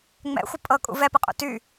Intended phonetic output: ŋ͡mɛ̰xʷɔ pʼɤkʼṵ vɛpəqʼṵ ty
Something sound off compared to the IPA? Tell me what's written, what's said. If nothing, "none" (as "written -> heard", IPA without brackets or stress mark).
ɔ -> ə